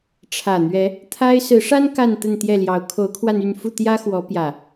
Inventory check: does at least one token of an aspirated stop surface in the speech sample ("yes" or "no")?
yes